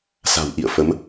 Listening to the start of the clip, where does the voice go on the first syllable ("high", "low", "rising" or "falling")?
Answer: low